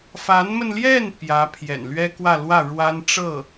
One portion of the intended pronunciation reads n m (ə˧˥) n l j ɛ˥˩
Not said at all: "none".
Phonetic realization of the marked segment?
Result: ə˧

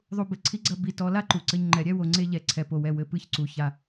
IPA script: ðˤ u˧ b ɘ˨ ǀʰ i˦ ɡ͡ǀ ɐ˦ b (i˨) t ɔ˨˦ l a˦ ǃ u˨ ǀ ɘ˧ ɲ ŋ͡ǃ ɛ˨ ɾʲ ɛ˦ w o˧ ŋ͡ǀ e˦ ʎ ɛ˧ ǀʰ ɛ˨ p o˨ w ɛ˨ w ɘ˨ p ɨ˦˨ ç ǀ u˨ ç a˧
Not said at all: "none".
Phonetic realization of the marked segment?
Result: i˨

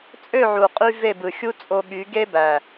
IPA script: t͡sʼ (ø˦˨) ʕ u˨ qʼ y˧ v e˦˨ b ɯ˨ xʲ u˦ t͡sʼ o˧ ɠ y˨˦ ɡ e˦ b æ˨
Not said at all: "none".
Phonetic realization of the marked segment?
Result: ø˦˨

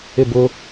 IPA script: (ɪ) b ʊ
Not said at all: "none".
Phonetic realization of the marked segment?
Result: ɪ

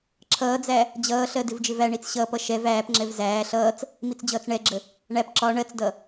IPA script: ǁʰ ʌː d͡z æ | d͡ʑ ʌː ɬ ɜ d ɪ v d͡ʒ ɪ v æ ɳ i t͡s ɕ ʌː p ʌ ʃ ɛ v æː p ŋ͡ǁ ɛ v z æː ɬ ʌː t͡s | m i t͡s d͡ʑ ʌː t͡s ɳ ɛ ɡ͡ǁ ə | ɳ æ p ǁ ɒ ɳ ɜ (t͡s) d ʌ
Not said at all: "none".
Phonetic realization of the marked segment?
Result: t͡s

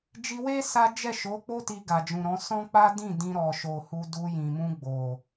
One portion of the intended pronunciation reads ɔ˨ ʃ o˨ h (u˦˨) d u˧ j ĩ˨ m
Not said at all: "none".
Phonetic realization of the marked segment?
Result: u˧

